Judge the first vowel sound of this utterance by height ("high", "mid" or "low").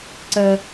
mid